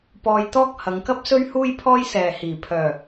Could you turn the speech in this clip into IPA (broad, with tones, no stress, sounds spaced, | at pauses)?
p ɔː˧ j t̪ ɔː˥ k̚ h ɐ˨˧ ŋ k ɐ˥ p̚ s ɵ˥ ɥ h uː˥ j pʰ ɔː˥ j s ɛː˨ h iː˨˩ pʰ œː˨˩